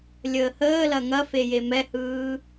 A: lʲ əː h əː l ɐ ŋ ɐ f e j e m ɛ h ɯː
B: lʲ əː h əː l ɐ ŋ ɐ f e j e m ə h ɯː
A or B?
A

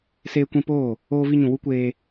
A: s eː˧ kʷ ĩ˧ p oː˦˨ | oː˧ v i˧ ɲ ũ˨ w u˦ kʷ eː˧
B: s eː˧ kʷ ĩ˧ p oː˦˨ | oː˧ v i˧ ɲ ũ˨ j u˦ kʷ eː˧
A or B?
A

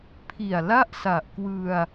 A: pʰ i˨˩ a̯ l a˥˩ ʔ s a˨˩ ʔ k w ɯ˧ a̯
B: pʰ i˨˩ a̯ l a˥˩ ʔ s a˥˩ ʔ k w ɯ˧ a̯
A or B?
A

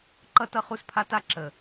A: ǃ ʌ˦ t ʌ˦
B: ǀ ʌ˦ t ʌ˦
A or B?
A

